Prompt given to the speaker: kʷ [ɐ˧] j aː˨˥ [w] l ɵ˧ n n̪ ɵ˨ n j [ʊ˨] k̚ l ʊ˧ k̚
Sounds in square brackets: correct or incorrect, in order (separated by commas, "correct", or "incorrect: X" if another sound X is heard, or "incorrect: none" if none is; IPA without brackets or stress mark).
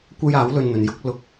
incorrect: ɐ˥, correct, incorrect: ʊ˨˥